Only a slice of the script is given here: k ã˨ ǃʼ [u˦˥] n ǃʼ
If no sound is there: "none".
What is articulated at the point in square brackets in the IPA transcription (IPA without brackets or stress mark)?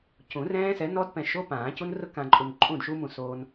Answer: u˨